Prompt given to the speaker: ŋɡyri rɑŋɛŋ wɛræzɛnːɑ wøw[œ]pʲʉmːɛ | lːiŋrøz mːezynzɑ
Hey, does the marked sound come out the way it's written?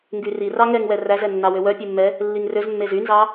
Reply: yes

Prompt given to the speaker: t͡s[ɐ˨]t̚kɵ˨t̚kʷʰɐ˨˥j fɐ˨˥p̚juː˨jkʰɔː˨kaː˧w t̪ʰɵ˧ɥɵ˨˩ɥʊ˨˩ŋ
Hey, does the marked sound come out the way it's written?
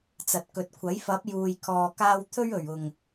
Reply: yes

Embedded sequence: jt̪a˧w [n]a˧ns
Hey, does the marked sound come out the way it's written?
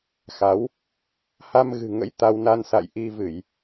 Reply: yes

